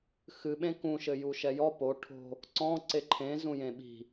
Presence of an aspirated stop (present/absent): present